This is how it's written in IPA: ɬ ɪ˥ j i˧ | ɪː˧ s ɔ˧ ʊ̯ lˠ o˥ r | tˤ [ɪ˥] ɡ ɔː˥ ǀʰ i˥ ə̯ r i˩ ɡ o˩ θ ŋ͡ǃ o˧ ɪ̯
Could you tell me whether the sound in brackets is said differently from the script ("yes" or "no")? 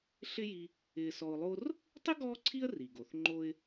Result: no